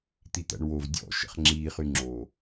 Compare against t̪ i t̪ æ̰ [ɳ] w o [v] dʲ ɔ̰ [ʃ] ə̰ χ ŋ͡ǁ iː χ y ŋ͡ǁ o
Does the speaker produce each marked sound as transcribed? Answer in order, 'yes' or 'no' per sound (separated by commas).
yes, yes, yes